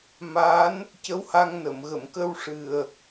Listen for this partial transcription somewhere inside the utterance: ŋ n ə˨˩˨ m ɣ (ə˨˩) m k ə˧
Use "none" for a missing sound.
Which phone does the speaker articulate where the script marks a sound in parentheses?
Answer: ə˨˩˨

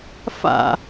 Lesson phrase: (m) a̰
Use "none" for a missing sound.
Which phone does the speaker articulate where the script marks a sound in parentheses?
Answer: f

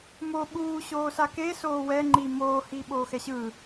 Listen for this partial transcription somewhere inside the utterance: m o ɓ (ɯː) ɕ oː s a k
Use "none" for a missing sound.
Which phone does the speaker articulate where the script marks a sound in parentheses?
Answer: uː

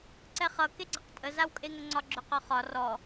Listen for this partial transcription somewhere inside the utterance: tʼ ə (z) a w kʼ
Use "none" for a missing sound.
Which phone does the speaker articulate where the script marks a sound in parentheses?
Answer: z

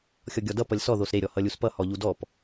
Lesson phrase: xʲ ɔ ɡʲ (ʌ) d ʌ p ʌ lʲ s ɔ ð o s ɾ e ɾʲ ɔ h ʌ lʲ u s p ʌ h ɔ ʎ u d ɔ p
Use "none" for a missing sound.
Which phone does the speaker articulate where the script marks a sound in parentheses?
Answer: ɔ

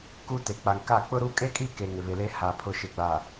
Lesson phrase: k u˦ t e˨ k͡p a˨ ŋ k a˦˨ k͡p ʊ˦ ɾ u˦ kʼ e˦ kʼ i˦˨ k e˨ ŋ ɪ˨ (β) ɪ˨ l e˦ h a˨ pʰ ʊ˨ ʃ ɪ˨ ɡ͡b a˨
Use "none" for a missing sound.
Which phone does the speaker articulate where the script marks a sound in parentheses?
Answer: β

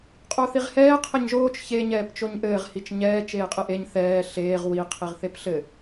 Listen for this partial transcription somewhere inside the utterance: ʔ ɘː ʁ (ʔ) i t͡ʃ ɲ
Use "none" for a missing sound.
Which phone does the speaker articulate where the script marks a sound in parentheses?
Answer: h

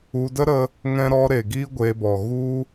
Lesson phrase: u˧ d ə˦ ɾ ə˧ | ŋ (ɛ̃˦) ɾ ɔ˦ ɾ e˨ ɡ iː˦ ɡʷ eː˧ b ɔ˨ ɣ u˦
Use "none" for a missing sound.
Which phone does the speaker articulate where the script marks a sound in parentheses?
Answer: ɛ̃˦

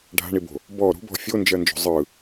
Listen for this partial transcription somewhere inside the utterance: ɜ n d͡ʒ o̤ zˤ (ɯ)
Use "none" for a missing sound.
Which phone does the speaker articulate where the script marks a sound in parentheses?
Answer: ɯ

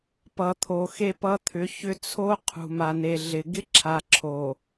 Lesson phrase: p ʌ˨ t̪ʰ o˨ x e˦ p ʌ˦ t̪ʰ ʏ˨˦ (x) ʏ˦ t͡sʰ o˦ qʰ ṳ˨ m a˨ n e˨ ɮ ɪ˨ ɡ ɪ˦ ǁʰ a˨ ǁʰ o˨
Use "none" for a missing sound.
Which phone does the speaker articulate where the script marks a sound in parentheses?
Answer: ç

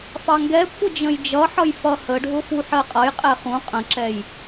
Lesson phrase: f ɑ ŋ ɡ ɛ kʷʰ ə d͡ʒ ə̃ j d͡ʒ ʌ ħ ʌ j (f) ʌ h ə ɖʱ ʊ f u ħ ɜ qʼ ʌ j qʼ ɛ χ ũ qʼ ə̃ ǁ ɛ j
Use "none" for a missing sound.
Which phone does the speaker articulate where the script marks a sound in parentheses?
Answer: f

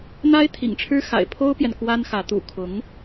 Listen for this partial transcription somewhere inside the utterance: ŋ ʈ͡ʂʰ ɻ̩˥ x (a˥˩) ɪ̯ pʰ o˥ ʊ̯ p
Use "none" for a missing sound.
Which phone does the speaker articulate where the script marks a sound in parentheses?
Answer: a̰˨˩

